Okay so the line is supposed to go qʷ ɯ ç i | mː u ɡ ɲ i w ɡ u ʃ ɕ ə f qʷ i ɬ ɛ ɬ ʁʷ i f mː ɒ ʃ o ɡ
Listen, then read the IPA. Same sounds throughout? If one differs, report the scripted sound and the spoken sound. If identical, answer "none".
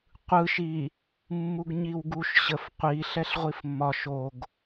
ç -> ʃ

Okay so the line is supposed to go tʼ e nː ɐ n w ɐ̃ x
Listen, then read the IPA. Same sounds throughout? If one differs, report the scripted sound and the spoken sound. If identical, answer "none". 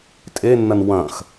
none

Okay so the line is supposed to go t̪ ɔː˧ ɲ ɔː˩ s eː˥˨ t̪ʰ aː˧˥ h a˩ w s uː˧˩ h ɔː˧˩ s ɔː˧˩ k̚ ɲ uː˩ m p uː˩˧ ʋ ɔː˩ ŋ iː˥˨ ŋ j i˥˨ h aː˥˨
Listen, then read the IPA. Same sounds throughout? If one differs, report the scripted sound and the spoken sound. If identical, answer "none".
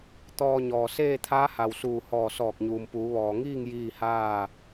i˥˨ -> iː˥˨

